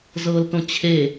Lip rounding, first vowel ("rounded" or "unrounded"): unrounded